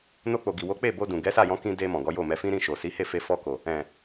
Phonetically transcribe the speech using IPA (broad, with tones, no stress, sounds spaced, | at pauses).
n o˧ k͡p o˨ ɡ i˨ w o˨˦ k͡p e˦˨ b o˧ d ũ˨ ɡ ɛ˨˦ s a˦˨ j ɔ̃˧ k ĩ˧ d e˧ m ɔ̃˨ ɡ ɔ˨˦ j o˦˨ m ɛ˧ f ĩ˦ ɾ ĩ˦˨ ʃ o˨ s i˨˦ h e˦˨ f e˧ f ɔ˧ k o˨ | ɛ̃˨